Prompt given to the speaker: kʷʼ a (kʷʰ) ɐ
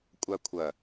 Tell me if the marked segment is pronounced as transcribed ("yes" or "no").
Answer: yes